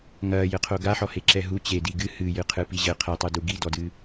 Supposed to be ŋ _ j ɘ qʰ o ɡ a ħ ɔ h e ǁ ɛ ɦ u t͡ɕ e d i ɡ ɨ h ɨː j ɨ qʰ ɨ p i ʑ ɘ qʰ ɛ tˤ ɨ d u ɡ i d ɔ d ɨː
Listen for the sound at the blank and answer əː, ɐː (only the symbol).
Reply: ɐː